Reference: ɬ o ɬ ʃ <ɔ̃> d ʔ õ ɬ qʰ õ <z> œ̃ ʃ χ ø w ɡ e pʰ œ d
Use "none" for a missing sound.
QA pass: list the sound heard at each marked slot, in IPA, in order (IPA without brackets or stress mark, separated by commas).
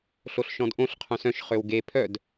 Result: ɔ̃, s